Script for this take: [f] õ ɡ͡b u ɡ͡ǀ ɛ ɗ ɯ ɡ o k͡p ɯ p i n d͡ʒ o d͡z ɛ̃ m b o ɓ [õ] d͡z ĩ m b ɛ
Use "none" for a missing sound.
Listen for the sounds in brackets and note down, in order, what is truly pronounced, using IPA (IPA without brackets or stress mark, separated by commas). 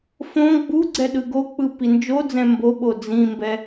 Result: f, o